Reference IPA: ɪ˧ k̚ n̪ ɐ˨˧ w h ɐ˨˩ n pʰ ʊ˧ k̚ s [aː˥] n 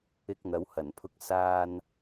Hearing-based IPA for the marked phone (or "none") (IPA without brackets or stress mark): aː˧